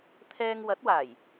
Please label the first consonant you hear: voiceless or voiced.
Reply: voiceless